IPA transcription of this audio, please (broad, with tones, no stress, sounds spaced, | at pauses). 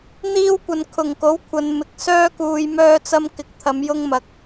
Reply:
n̪ iː˥ w kʷ ɐ˧ n kʰ ʊ˨ ŋ k o˨˥ w kʷʰ ɐ˨˧ n m ɪ˨ k̚ s œː˥ k uː˧ j m œː˧ t͡s ɐ˧ m k ɪ˨ k̚ t̪ʰ ɐ˨˧ m j ʊ˧ ŋ m ɐ˨ k̚